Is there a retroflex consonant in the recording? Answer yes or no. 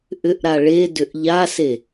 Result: yes